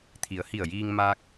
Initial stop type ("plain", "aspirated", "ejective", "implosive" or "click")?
aspirated